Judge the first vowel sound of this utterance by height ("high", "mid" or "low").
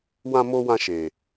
low